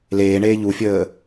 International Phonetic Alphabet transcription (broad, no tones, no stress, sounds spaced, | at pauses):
l eː ɳ eː ʎ u fʲ əː